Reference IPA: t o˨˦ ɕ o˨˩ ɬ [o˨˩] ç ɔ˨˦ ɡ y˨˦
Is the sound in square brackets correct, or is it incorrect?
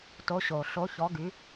incorrect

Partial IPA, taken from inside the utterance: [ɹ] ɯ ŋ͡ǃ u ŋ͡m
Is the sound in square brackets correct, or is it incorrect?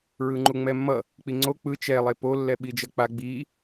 correct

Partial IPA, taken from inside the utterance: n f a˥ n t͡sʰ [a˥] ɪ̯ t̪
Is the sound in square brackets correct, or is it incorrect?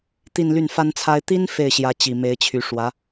correct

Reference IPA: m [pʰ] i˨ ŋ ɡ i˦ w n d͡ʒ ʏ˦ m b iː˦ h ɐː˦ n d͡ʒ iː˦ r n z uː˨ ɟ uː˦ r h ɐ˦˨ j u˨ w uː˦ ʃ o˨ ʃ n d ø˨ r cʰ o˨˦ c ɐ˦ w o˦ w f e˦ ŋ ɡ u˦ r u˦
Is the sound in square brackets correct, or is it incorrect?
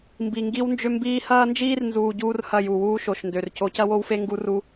incorrect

